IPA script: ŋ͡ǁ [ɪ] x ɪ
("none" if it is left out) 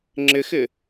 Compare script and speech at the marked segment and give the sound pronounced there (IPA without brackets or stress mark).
ɪ